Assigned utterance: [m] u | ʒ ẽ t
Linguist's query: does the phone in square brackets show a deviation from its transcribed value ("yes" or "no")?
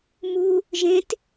no